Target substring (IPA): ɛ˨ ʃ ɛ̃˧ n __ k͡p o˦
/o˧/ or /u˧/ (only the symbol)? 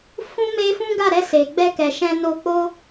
o˧